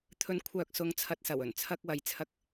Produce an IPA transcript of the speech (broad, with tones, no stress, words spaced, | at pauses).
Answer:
t̪ʰɵ˨˥nkʷʰœː˨k̚ sʊ˨˧ŋt͡sʰɐ˨t̚sɐ˨˩w ɵ˨˩nt͡sʰɐ˧k̚wɐ˨˥j t͡sʰɐ˧k̚